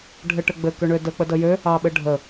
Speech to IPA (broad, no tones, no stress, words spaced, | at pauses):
ɖʱɘʈɘɡ͡bɘ køɳødə k͡pədəjø | ɑɓɘɖʱə